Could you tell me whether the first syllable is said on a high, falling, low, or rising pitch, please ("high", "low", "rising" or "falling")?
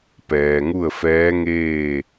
low